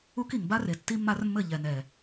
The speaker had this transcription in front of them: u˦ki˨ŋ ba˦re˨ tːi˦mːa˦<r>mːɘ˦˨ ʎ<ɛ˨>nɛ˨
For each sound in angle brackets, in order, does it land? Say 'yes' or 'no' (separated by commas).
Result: yes, yes